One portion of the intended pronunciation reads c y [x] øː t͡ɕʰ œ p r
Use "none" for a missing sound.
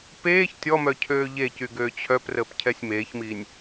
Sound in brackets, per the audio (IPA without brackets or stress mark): ɡ